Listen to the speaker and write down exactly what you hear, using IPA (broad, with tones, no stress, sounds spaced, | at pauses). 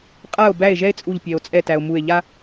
qʼ a˥˩ o̯ b æ˥˩ e̯ ʒ ɛ˥ e̯ t͡sʼ u˧˩ ʎ pʲ ɛ˩ o̯ t͡sʼ ɛ˧˩ t æ˩ o̯ m u˧˩ e̯ ʎ a˥